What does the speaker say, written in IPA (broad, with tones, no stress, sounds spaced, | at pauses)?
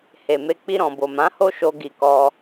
h e˨ m e˧ k͡p i˧ ɾ ɔ̃˨ b o˨ m ã˨˦ h o˦ ʃ o˧ ɡ i˨ k ɔ˧